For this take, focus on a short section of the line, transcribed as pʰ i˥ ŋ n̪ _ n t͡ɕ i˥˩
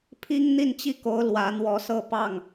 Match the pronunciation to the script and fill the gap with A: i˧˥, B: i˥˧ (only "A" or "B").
B